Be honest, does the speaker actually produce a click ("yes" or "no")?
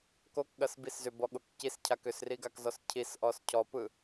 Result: no